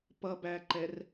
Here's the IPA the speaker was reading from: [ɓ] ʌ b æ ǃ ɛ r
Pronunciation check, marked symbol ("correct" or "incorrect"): incorrect